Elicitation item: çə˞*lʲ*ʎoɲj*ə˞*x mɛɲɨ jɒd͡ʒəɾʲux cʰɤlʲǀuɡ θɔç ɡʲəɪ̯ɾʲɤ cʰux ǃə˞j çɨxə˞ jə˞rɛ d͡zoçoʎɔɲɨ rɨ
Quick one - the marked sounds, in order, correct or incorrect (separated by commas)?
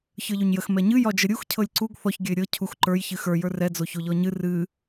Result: incorrect, incorrect